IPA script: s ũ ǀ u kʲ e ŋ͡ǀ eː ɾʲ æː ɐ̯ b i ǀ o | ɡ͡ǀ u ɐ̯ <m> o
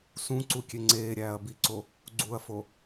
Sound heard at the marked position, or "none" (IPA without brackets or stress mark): f